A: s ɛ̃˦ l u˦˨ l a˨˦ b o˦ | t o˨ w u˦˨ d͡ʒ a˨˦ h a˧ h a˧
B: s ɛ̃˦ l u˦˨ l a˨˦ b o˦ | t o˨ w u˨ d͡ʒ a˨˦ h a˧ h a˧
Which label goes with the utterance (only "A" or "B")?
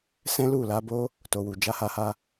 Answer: B